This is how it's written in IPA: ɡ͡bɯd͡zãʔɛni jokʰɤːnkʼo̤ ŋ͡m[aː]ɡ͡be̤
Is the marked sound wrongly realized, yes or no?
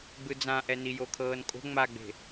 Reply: yes